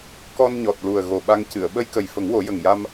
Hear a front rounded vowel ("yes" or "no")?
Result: no